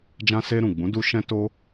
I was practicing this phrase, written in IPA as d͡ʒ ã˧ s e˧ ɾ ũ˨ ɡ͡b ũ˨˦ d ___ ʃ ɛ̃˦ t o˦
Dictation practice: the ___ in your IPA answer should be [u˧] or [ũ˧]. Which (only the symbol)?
u˧